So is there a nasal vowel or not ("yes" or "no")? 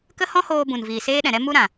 yes